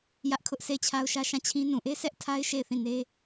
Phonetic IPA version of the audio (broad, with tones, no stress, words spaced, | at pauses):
jä˦ʔkʰʊ˦ʔ sʰe˦˨ɪ̯t͡ɕʰa˦ʊ̯ʃä˦ ʃã˦˨t͡ɕʰĩ˦ nũ˨ʔe˦ sʰɛ˦ʔtʰa˦ɪ̯ ʃe˦˨ɪ̯θĩ˦˨ne˦